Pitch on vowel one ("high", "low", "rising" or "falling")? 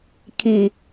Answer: low